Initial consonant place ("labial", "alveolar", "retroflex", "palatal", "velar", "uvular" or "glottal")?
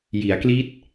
palatal